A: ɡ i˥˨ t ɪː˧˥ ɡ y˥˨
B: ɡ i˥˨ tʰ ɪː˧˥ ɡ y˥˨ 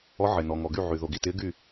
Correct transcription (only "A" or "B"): A